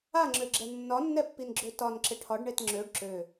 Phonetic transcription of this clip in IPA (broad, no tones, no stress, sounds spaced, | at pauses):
a ŋ͡ǁ ø ɡ͡ǁ ɛ nː ɒ nː ɛ pː i n ɡ͡ǁ ø t ɒ n ǁ ɪ ʈʰ ɒ ɖ ɳ e t ŋ͡ǁ ø ɖ ǁ ø